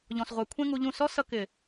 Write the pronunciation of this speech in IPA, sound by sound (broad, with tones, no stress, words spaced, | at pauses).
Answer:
ʎɔ̃˨sʁʷɛ˨kʷʰɛ̃˦ ŋu˧ʎũ˦˨ sɔ˦sʌ˧kɪ˨